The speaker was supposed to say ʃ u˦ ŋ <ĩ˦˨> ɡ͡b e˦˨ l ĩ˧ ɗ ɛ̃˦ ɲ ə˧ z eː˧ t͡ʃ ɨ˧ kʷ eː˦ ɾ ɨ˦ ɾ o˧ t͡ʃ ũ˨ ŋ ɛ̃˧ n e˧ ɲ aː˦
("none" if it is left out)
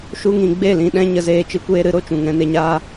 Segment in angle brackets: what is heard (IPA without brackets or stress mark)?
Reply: ĩ˧